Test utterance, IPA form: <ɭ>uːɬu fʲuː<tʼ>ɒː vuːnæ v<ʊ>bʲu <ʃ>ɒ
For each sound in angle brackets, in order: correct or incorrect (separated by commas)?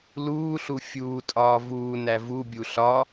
incorrect, correct, incorrect, incorrect